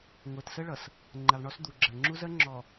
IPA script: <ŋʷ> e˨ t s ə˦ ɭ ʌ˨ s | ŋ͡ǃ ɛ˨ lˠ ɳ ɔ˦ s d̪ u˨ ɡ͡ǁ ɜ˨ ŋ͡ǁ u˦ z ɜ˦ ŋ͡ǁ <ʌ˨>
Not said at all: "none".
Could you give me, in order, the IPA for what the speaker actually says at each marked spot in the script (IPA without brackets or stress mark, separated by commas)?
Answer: ŋʷ, ɔ˨